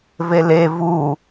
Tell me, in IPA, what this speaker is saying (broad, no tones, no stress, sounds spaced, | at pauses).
v e l e v u